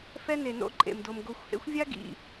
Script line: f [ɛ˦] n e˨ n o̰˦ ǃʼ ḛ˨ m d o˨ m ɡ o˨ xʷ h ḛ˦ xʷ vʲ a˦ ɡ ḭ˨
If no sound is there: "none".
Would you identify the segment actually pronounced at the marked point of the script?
ɛ˦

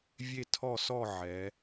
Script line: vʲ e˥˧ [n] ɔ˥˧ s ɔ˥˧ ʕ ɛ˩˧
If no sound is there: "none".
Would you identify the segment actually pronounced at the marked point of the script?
tʰ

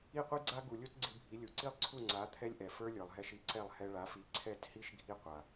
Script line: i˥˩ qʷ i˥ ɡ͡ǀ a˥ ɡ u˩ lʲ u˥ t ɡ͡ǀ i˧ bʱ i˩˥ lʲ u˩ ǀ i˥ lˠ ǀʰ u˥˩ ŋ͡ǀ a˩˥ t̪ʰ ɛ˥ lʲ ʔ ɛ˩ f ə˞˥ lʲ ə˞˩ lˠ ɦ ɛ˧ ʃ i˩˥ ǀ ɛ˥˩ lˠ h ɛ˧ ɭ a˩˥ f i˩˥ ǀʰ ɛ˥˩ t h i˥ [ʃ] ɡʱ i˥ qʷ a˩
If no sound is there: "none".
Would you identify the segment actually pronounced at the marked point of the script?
ʃ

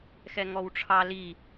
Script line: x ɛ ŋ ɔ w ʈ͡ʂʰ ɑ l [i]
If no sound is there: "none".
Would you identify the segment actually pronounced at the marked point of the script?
i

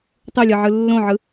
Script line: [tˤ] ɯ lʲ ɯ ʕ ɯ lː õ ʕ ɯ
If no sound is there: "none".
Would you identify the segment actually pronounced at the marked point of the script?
tˤ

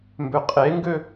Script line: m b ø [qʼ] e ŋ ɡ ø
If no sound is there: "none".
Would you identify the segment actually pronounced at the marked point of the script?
qʼ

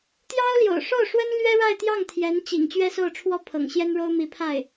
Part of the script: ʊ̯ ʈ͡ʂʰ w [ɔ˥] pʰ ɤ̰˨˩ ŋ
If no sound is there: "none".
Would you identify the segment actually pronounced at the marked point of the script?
ɔ˥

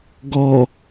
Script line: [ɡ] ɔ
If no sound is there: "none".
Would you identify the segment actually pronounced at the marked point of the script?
ɡ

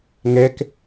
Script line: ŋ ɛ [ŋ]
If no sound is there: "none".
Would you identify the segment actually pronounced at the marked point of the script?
k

